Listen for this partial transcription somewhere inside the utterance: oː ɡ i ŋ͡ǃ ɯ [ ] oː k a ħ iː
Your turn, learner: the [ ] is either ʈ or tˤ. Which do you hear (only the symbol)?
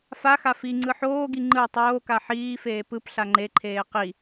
tˤ